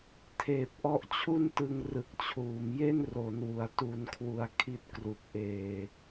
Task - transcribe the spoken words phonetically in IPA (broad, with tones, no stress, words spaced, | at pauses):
tʰeː˨˩p̚ʔɔ˦˥ʔt͡ɕʰu˥˩ntɯ˧ŋ rɯ˨˩k̚t͡ɕʰuː˩˦mje˥˩n ro˩˦nwu˩˦a̯tu˧nkʰwu˧a̯ kʰi˦˥t̚kru˨˩k̚ʔeː˧